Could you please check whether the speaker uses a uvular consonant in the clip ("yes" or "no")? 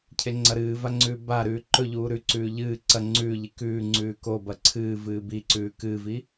no